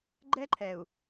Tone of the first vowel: high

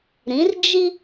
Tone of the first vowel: rising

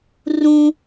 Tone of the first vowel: high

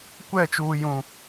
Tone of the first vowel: falling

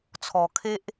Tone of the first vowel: low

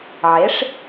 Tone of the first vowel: rising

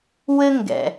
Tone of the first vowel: high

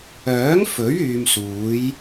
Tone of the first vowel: rising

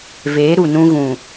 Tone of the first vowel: rising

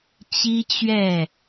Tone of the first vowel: high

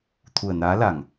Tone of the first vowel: low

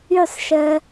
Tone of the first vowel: falling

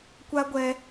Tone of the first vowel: high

